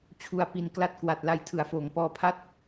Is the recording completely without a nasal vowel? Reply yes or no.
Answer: yes